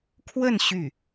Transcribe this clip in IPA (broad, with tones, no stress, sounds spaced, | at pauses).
kʰ w ə˥˧ n ɕ y˥˩